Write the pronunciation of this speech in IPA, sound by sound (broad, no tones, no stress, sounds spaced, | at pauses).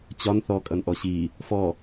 t͡ɕ ɒ n θ ɔ kʼ ʌ n ʔ ɔ ɕ i | f ɔ